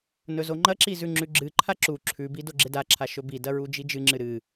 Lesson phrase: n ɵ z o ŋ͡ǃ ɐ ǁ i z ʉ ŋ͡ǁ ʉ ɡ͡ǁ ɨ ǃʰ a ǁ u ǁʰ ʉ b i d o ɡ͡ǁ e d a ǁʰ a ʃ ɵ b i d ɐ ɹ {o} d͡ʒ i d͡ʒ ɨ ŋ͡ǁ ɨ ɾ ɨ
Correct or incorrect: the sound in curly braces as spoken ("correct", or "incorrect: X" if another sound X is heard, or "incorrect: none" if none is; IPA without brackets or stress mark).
incorrect: u